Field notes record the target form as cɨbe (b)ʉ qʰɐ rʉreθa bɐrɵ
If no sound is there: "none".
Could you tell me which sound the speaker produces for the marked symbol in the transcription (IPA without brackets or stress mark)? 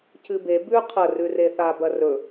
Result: b